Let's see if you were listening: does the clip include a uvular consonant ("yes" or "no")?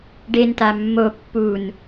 no